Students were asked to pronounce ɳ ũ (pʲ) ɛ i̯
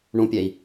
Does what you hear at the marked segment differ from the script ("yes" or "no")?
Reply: no